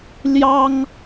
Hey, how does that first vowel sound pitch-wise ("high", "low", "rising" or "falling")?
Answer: high